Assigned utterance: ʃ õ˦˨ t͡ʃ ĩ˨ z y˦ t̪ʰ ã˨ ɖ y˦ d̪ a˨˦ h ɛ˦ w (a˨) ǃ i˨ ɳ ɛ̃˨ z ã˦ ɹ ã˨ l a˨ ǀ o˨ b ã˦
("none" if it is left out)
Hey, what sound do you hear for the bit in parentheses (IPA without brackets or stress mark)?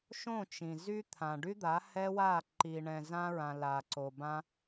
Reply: a˦˨